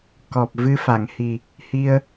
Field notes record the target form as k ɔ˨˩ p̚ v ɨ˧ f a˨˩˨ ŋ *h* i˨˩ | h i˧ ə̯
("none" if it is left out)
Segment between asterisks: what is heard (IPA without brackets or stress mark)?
h